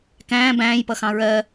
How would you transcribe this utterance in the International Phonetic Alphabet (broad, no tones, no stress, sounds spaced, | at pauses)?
k æ̃ː b æ̃ː j p ʌ x ɑ̃ ɹ ɜ